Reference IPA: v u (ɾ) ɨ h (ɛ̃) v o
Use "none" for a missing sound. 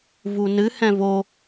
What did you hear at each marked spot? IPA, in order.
n, ɛ̃

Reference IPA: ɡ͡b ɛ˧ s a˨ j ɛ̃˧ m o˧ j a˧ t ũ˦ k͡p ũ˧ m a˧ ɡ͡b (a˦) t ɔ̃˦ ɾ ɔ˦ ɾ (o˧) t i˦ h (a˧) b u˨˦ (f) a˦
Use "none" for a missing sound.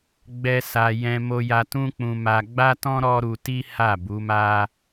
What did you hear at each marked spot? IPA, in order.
a˦, u˧, a˦˨, m

